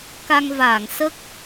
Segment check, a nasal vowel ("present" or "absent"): absent